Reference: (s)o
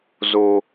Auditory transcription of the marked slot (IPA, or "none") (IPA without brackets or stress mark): z